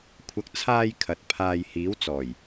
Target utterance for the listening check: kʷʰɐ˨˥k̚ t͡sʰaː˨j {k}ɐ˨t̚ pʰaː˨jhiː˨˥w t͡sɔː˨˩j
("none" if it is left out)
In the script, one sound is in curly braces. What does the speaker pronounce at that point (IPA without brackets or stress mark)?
kʰ